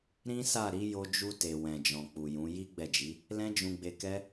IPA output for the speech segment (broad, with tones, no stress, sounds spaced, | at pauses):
ɾ ĩ˦ s a˦˨ ɾ i˨˦ j o˧ d͡ʒ u˧ t e˨ w ɛ̃˨ d͡ʒ ɔ̃˨ k͡p u˨ j ũ˨˦ j i˦ ɡ͡b ɛ˦˨ d͡ʒ i˨˦ | l ɛ̃˦ d͡ʒ ũ˧ ɡ͡b e˧ k ɛ˦